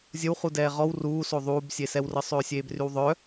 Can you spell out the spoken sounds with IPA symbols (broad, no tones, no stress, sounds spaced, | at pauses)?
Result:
zʲ ə w χ u d ɛː ʁ ɔ w r uː s o ðˤ uː b sʲ e s ɛ w r ə sˤ øː sʲ eː b r y w ðˤ œ